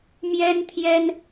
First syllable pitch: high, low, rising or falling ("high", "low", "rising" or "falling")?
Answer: high